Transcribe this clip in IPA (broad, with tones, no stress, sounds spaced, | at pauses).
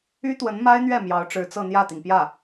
y˥ t̪ w ə˧˥ n m a˥ ɪ̯ n̪ ɥ ɛ˥˩ m j ɑ˧˥ ʊ̯ ʈ͡ʂ ɻ̩˧˥ t͡s ɤ˥˧ n̪ j ä˥˩ t̪ i˩ ŋ p j ä˥˩